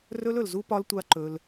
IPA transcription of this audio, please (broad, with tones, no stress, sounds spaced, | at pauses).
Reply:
r ɵ˦ l ɵ˨ l z u˦ p ɒ˧ l tʷ a˧ ǃ ɵ˧ l